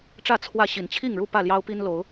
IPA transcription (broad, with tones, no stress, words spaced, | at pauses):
ʈ͡ʂä˥˨ t͡sʰwä˥˨ ɕi˨˩nt͡ɕʰi˥˨ŋɻu˥˨ pä˥˨ljɑ˦ʊ̯pi˦n lo˨˦ʊ̯